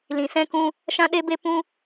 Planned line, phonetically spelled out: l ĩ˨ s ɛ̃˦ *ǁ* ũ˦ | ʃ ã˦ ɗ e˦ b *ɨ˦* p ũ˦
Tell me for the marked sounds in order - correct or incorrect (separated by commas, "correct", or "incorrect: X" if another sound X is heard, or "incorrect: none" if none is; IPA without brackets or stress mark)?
incorrect: k, incorrect: e˦